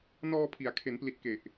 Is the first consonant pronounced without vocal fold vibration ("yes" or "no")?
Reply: no